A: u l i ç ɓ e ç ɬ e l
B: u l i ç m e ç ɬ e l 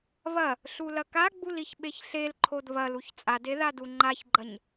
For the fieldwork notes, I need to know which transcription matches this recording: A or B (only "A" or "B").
A